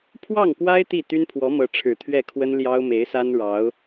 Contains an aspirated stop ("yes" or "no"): yes